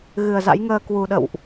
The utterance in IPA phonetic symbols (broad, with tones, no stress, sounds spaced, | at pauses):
ɣ ɨ˨˩ ə̯ z a̰˧˥ j ŋ əː˧ k w u˨˩ ɗ ə̰˧˨ w ʔ